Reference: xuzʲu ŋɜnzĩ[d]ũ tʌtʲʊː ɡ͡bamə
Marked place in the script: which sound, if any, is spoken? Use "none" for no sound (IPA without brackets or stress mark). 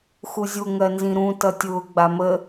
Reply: ɾ